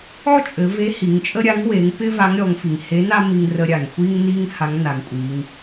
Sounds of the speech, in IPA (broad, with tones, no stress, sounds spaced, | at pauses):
ɔ˥ t͡ʃʼ ɘ˩˧ v e˧˥ h i˩˧ ŋ t͡ʃʼ ə˥ ɾʲ a˧˥ ŋ w e˩˧ ŋ p ɪ˥ v a˧˥ ŋ ɾʲ ɔ˩˧ ŋ f i˩ ŋ h e˧˥ n a˥ m i˧ ŋ r ə˧ ɾʲ a˩ ŋ xʷ i˥ ŋ n i˥ ŋ h a˧˥ ŋ n a˩˧ ŋ kʷʼ i˩˧ ŋ